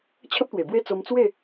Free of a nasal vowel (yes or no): yes